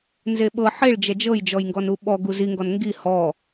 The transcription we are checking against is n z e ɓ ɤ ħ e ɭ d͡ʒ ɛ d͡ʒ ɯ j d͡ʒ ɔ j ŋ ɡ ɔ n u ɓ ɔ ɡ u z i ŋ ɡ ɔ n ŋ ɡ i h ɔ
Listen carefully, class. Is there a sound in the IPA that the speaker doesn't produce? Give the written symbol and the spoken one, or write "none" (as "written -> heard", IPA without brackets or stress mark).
ɯ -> ɤ